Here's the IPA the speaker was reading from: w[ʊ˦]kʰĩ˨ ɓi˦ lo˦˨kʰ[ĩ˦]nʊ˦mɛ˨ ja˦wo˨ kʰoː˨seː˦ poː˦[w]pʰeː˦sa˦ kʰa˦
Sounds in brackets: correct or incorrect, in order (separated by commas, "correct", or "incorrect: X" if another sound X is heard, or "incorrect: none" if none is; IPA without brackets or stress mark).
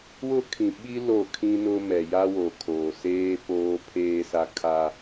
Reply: correct, correct, incorrect: none